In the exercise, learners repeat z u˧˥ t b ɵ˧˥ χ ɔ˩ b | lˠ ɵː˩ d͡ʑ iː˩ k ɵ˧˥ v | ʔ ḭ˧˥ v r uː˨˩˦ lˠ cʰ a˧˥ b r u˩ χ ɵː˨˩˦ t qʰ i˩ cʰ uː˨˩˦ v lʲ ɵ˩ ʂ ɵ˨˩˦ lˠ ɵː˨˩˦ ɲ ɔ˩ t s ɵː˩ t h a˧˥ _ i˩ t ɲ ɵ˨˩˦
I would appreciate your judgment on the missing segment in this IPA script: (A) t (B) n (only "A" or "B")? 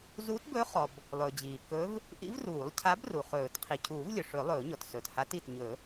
A